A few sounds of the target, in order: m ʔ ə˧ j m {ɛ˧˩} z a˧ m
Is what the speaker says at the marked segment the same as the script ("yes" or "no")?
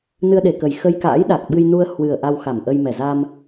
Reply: yes